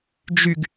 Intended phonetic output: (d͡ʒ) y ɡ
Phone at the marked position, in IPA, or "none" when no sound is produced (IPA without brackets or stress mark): d͡ʒ